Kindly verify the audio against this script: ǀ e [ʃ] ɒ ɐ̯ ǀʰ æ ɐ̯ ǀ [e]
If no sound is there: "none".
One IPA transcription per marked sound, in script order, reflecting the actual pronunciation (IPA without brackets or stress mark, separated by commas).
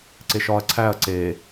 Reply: ʃ, e